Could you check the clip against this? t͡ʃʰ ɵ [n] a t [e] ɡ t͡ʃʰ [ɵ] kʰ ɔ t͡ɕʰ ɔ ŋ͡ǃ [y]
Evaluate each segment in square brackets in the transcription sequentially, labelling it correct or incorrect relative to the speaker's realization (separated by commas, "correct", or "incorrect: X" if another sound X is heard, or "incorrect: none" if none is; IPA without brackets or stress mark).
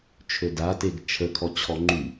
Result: incorrect: d, correct, incorrect: ə, correct